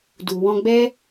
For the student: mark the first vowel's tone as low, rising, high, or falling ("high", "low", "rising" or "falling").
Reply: low